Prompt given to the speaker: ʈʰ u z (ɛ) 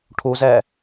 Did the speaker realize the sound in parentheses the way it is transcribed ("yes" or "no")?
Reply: yes